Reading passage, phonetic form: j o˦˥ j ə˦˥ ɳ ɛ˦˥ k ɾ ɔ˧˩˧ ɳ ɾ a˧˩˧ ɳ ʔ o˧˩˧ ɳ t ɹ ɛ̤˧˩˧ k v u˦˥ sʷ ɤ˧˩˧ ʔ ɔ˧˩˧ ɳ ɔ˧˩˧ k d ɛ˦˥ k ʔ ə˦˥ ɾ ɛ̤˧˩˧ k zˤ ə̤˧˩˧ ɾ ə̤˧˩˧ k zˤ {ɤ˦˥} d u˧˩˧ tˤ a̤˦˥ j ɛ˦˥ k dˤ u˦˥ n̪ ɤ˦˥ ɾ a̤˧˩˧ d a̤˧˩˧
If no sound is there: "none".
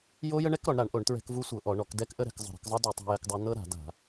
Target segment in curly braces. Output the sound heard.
ɤ˦˥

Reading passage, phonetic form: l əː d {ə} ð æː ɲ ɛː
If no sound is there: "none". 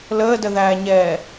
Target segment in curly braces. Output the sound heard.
ə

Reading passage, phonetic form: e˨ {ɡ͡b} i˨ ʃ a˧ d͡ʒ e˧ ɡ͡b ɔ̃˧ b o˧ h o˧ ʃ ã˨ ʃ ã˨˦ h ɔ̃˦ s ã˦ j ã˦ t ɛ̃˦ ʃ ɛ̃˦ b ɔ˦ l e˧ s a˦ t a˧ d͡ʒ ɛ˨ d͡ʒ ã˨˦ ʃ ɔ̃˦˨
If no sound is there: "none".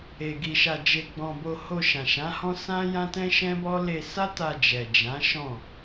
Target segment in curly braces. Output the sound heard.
ɡ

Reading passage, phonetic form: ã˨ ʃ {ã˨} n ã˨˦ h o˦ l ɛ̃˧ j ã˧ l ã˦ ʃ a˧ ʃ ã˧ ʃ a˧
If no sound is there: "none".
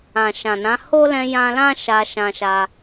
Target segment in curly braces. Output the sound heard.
ã˨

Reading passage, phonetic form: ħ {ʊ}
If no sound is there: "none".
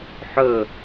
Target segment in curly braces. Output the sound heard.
ɵ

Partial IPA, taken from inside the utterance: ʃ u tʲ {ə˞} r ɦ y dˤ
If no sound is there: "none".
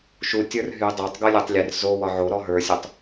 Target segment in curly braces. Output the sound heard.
ə˞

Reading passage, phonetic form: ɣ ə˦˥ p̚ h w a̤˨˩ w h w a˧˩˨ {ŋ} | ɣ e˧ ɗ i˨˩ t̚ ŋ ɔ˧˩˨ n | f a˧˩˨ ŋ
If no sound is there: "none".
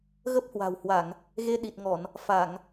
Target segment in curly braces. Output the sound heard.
ŋ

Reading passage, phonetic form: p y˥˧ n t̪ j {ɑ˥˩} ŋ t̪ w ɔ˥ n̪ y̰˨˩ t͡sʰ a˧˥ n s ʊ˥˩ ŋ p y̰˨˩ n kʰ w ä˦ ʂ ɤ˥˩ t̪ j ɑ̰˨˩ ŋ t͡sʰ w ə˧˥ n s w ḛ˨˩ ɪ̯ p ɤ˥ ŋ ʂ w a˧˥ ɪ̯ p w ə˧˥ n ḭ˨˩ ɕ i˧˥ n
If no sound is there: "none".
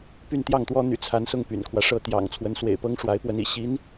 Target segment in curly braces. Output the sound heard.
ɑ˥˩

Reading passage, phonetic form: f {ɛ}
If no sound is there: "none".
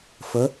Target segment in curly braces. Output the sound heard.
ə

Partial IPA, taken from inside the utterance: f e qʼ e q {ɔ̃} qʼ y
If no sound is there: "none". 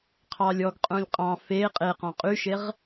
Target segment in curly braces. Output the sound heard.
ɔ̃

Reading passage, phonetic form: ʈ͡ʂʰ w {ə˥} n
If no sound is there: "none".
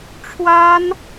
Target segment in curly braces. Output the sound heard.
a˥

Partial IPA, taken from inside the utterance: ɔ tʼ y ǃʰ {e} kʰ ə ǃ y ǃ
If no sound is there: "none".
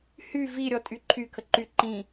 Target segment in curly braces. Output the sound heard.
y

